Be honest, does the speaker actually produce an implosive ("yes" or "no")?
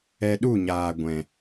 yes